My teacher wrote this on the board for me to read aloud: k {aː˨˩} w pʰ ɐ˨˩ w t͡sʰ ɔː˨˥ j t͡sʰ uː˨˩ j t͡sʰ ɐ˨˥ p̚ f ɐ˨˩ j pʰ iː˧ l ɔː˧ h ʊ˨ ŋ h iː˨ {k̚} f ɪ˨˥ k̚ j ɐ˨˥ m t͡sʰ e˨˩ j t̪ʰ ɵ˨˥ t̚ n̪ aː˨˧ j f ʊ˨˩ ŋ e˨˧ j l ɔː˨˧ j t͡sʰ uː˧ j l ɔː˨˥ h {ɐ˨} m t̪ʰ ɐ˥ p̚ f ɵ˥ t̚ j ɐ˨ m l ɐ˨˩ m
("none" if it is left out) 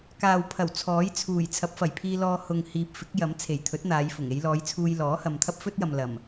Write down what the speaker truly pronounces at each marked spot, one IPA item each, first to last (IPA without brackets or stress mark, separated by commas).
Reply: aː˨, p̚, ɐ˨